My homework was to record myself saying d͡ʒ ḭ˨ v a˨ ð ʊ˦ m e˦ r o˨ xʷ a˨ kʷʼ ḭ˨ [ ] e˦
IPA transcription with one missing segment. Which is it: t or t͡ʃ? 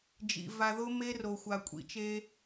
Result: t͡ʃ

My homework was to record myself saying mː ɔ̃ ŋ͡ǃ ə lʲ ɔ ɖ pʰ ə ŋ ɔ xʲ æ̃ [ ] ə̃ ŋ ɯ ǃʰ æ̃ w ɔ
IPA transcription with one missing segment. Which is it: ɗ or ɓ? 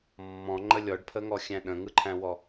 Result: ɗ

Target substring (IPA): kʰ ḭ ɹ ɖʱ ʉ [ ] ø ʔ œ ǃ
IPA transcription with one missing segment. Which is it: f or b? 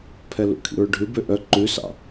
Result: b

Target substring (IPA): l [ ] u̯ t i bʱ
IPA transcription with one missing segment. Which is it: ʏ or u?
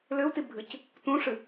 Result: ʏ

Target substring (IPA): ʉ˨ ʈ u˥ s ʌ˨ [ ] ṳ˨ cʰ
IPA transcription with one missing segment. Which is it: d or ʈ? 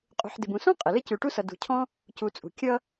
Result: d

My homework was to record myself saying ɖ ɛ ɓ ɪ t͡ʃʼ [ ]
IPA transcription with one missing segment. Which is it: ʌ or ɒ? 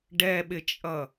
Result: ʌ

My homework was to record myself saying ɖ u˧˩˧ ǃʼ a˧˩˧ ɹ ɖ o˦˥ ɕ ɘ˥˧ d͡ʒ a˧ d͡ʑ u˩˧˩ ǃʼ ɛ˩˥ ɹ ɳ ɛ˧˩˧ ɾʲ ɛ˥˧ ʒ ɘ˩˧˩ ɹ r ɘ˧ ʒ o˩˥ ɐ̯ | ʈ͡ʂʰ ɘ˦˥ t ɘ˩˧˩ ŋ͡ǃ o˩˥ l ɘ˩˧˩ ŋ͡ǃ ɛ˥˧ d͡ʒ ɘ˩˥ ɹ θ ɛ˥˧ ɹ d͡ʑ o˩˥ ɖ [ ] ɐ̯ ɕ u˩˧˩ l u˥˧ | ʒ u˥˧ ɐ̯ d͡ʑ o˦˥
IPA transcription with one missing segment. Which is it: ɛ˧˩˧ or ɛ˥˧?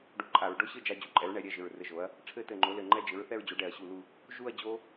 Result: ɛ˧˩˧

